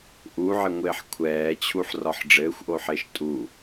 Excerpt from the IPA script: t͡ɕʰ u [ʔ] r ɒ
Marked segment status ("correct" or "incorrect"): incorrect